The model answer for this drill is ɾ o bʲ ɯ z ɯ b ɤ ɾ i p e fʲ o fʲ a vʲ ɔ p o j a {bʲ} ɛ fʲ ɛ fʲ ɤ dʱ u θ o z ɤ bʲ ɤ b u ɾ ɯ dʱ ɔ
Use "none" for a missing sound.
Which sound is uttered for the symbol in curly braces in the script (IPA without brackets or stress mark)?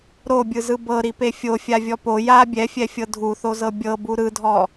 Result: bʲ